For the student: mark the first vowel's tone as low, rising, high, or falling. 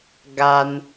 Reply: high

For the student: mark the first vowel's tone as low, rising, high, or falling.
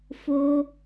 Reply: high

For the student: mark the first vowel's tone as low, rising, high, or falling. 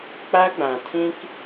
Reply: high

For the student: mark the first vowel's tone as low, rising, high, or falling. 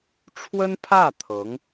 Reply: high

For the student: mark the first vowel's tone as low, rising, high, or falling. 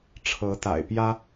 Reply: rising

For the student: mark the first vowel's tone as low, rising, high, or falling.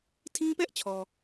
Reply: high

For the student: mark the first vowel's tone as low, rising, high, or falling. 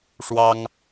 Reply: high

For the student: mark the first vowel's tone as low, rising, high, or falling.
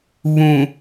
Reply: low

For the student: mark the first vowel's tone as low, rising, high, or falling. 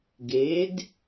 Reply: rising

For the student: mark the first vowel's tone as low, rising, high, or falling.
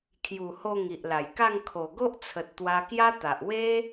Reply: low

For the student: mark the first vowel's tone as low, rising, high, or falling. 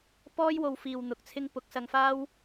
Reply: high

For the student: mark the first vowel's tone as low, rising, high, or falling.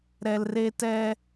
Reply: high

